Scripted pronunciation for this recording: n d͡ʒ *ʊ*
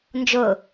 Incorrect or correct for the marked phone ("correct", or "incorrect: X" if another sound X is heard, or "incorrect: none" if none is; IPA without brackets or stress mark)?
correct